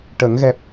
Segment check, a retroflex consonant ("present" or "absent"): present